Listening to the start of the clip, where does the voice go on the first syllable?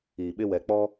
low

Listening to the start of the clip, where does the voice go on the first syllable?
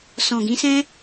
low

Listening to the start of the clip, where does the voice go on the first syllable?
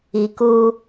low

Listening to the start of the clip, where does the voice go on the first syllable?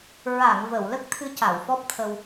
low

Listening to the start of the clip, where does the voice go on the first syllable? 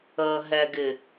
low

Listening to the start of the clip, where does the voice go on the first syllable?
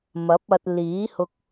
rising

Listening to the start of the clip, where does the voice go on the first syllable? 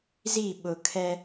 falling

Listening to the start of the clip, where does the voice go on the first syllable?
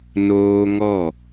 high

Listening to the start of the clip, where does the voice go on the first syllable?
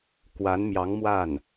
rising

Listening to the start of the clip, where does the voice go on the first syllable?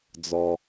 low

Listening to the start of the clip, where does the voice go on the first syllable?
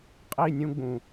falling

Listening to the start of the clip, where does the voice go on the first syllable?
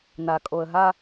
low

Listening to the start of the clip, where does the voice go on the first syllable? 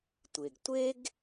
low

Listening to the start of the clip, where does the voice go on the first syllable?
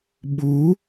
rising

